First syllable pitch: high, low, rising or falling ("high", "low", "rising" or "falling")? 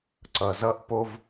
low